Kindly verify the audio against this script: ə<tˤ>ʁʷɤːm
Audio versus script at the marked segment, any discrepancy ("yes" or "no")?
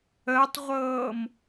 no